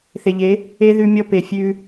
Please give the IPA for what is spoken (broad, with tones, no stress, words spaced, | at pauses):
θe˨ʎe˨˦ | e˦ ðʉ˧mʲɔ˧pe˨ fʲʉ˧